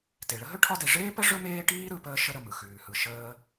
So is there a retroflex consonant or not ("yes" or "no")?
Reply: yes